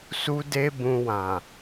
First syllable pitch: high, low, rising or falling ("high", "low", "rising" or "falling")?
high